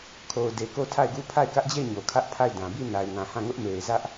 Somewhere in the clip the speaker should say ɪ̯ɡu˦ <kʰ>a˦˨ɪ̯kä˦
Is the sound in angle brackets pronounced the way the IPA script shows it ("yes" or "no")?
no